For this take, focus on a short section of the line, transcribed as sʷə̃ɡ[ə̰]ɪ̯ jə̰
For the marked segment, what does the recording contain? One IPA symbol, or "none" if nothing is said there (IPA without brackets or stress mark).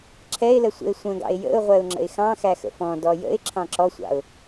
ɑ̰